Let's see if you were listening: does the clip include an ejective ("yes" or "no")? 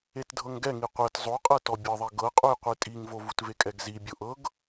yes